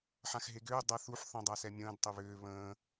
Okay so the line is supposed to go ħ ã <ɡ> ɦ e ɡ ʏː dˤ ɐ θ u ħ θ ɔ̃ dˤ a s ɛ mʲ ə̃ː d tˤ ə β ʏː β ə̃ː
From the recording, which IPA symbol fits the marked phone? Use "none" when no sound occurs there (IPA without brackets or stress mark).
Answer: x